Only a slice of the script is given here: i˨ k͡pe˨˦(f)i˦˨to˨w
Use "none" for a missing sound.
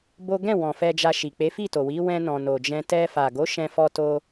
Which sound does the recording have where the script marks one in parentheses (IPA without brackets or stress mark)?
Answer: f